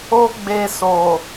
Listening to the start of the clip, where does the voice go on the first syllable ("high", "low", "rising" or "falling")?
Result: high